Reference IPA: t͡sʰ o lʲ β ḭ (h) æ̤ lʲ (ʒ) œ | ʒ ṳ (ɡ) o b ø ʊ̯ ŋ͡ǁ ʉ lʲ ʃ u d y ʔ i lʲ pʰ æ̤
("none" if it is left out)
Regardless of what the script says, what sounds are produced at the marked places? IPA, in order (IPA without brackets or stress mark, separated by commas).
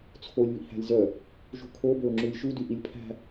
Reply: h, z, kʰ